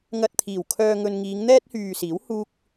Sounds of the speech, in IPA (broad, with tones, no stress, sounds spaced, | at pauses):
ŋ ɐ˧ t̚ t̪ʰ iː˨˩ w kʰ œː˧ ŋ ɵ˧ n ŋ iː˨˧ ŋ n̪ ɛː˥ t̚ h yː˨ s iː˨˥ w h uː˥ k̚